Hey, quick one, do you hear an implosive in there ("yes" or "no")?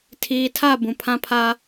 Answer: no